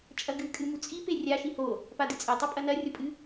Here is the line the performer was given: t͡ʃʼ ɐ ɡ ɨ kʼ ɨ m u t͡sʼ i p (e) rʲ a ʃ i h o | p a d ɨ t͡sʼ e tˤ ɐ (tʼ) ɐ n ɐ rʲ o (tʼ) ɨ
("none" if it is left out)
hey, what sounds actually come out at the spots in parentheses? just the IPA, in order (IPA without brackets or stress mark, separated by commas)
e, pʼ, pʼ